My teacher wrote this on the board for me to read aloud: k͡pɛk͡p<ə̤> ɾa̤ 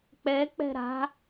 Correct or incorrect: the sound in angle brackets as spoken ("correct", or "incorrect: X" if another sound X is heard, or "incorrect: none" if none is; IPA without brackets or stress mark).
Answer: incorrect: ɛ̤